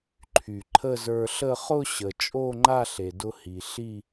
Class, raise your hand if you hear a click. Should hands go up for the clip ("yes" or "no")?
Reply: yes